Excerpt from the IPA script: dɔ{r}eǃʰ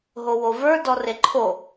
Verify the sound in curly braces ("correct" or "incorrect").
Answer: correct